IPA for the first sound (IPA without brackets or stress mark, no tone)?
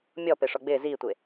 mʲ